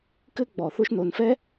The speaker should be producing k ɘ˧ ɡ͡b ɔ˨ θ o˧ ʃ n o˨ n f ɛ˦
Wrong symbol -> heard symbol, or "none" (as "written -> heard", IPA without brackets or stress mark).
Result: none